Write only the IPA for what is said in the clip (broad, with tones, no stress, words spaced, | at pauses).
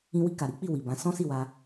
ĩ˧wi˧ ka˨ɾi˨˦k͡pi˦˨ wi˨bã˨˦ sɔ̃˦si˦˨wa˧